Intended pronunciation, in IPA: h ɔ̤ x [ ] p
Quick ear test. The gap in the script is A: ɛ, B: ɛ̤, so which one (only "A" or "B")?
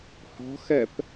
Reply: A